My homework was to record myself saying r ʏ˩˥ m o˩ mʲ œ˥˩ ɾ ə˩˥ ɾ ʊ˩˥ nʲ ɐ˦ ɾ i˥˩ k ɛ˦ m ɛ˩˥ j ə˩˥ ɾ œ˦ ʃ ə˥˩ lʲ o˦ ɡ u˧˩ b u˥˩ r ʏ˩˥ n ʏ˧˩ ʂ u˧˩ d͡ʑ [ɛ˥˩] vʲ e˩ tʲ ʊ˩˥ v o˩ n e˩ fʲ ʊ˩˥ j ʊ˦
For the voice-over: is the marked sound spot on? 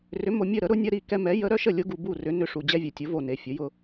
no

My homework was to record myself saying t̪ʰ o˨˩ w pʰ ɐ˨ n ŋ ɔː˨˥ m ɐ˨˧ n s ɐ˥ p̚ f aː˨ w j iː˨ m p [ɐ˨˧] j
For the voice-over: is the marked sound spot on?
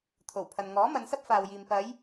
yes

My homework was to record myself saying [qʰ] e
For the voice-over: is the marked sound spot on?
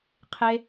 yes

